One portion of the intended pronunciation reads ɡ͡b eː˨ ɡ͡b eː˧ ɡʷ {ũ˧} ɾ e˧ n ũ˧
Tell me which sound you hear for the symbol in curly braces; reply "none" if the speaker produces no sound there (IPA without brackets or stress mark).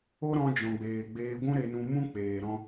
ũ˦